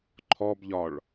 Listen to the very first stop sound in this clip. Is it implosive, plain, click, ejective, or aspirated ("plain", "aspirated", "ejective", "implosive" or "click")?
click